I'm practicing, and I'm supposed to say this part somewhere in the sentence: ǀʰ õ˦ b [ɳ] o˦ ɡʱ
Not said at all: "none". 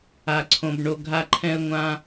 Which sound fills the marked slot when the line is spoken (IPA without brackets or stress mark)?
ɳ